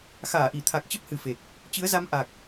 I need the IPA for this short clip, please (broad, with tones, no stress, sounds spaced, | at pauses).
x aː˧˩ ʔ i˧˩ t̪ʰ a˨˩ k̚ t͡ɕ ə˦˥ p̚ h ɨ˨˩ f e˨˩ k̚ | t͡ɕ ɨ˨˦ ə̯ z a˧ m ʔ a˨˩ k̚